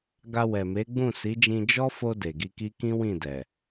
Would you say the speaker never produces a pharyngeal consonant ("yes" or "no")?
yes